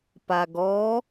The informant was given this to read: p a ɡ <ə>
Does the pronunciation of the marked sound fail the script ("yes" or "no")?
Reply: yes